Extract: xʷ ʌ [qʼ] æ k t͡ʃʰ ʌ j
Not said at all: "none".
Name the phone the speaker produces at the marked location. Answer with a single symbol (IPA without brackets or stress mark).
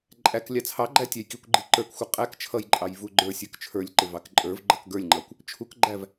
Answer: qʼ